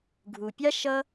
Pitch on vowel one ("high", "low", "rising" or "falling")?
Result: low